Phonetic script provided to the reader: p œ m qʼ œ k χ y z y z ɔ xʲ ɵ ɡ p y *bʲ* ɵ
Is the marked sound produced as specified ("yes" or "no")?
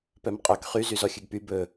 no